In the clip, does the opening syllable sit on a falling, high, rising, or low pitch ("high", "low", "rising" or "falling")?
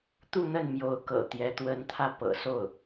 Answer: falling